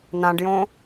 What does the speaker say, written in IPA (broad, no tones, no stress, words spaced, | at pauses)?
nãɖjõ